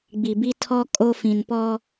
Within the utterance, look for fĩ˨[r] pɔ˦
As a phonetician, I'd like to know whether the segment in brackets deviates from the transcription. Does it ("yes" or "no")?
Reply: yes